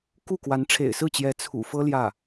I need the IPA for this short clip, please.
ku˥˩ kwa˧˥nʈ͡ʂʰḛ˨˩ɪ̯sɹ̩˥˩t͡ɕjɛ˧˥ t͡sʰṵ˨˩fɤ˥ ljä˥˩

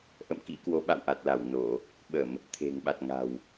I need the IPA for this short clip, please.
ʔə̰˧˨m kḭ˧˥kwo˨˦ ɓa̰˧˨wʔa˨˩t̚la˧˩w no˧˩˨ | ɓə˧˩˨m | t̪ʰe̤˨˩ŋɓa˨˩t̚ ŋa̤˨˩w

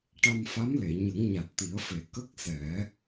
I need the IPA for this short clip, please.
ʈa˧mfa˧˥mle˨˩˨ ɲə˨˩˦ŋɲa˨˩t̚t̪i˨˩˦ə̯fe˨˩˦ kə˦˥k̚sɛ˨˩˦

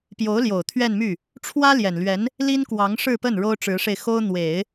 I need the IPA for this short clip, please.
pjo˧˥ʊ̯ ljo˨˩ʊ̯ t̪ʰɥɛ˥˧nmy˥˩ | ʈ͡ʂʰwä˥ljɛ˨˩nlɥɛ˧˥n | li˥nkwɑ˧˥ŋʂɻ̩˥˧pə˥˩n ɻo˥ʊ̯ʈ͡ʂɻ̩˧˥ʂe˧ɪ̯xo˥ʊ̯ n̪we˨˩˦ɪ̯

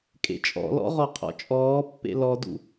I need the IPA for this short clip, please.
kʼḛt͡ʃʼɔ̰lɔ̰ ʁɔqʰɔ̰t͡ʃʼɔːpːḛ lɔdṵ

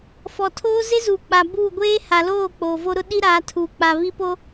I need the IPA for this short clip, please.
fɔ˨tʰoː˦ ze˦zuː˨k͡pa˨ buː˦˨ ɡʷeː˦ ha˨loː˦˨ k͡poː˨vo˦ɾʊ˦ ɗi˦ɾaː˨˦ tʰuː˨k͡pa˨βi˦po˦

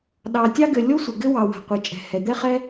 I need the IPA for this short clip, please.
ɗɑ˩tʲɑ˥ɡɘ˩ lʲo˥sʷə˩ ɡɘ˥wɑ˩ wa̤˩qʷɛ˩t͡ʃʼɛ̤˩ hɛ˩d̪ɛ˥χɛ˥

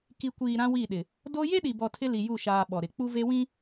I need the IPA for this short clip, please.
ki˨kʷiː˨ ɾã˦wi˦˨ɗɪ˨ | do˦ je˦ɗi˨bɔ˨ tʰɪ˦li˨ju˦˨ʃaː˨ ɓɔ˨ɾɪ˨ k͡pu˦ve˦wĩ˦

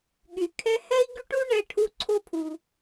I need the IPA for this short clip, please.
ɠy˧kʰɛ˥ hɛ˥i̯ɡy˥ʈu˥ ɳɛ˥ʈʰu˥ ǀʰo˥pʰu˧

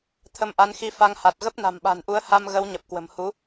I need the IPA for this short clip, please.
t̪ʰə˧mʔa˨˦n xi˧fa˧ŋha˨˩t̚ ɣə˦˥p̚na̤˨˩mɓa̤˨˩nʔu˨˦ə̯ ha˧mɣə˨˦wɲə˨˩p̚ kwə̤˨˩mhu˨˦

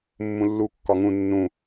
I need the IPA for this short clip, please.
mːũlːu kːɒŋũ nːũ

